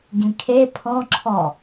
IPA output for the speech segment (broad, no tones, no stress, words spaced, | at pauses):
ɡĩkʰe pʰɔ̃ǁʰɔ